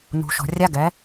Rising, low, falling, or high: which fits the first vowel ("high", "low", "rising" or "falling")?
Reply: low